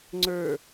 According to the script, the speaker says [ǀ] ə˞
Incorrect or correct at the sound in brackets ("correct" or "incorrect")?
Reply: incorrect